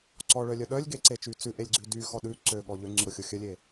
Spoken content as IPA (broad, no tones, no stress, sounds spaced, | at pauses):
ǀ ɔ ɭ œ lʲ œ ɗ œ lʲ ɡ e ǀ e t͡ʃ y t͡s ʉ ʔ e lʲ ɡ͡ǀ ʉ d y x ɔ ɗ ʉ ǀ ø ɠ ɔ ʎ ø ŋ͡ǀ ʉ ɾ o xʲ o xʲ œ lʲ e